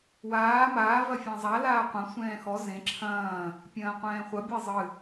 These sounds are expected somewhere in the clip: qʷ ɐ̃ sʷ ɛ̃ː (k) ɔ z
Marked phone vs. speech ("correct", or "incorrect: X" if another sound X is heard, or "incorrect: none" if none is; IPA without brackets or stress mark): incorrect: x